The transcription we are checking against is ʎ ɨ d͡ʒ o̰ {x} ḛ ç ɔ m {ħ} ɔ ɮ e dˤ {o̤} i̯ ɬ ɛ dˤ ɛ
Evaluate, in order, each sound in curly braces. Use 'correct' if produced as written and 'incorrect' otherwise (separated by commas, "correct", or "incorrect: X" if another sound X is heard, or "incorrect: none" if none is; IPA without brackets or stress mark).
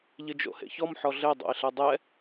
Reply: incorrect: h, correct, incorrect: o̰